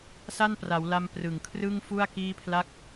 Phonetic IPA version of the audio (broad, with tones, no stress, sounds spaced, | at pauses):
s a˥˩ n p r a˩˦ w l a˧ m p r ɯ˨˩ ŋ kʰ r ɯ˥˩ ŋ f u˥˩ a̯ k iː˥˩ pʰ l a˥˩ k̚